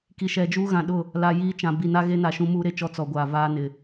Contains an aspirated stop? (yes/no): no